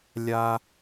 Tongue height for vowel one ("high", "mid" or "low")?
low